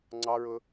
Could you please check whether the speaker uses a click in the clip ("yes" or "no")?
yes